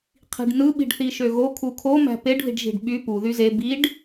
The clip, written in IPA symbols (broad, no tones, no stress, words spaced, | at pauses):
qʰi̤ɖnɯ ɓi̤ɖθiʃøɣo kʰukʰo mæ̤peɖ ði̤ɖʒi̤ɖɓy pu ðyze biɖ